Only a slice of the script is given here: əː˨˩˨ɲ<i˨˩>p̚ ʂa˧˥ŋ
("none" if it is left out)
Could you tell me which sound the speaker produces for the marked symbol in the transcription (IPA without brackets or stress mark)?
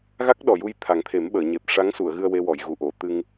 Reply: e˨˩